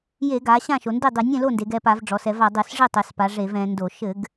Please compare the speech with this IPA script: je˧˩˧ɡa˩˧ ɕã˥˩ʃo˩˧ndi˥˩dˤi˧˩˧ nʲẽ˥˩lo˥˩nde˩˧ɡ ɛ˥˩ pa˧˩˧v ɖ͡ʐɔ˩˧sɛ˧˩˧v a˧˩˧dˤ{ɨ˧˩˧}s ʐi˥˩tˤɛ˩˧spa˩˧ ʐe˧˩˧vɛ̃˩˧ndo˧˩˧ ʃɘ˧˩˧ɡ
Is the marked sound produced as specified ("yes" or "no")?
yes